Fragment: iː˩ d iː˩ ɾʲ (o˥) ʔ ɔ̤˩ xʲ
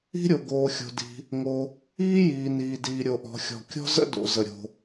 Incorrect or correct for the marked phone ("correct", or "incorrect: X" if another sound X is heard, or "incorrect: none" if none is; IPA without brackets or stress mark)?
incorrect: o˩